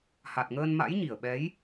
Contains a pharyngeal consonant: no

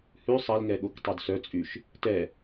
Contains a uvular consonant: no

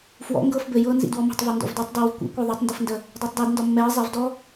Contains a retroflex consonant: no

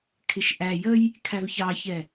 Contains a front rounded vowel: no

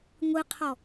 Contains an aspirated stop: yes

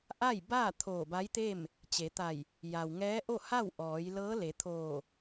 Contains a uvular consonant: no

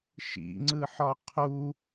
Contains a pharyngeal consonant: yes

